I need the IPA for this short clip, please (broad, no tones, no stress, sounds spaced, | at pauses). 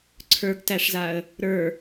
ǀʰ ə˞ ɡ t æ ʂ z a ə̯ | ɾ ə˞